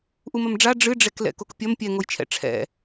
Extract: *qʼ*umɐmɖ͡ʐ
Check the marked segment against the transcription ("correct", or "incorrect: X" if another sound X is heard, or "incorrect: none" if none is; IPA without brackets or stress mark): incorrect: ʔ